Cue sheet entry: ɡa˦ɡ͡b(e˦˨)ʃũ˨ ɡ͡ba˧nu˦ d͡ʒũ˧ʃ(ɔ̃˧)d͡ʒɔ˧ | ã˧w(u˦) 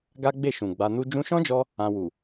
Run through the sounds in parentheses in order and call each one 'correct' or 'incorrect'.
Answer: correct, incorrect: ɔ̃˦, incorrect: u˨

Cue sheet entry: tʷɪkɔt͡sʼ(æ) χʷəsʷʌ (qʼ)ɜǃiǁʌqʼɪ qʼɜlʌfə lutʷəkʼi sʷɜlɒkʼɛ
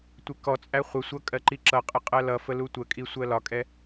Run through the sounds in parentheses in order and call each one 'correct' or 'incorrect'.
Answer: correct, incorrect: kʼ

